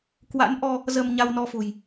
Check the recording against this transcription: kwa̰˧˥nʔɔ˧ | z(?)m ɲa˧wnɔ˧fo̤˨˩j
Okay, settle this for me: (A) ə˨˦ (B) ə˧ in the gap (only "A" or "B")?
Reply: B